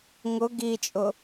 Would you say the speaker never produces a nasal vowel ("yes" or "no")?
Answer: yes